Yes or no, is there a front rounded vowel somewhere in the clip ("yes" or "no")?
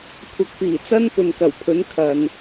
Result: no